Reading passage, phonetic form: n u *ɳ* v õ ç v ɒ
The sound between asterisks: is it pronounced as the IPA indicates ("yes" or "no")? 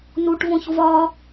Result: no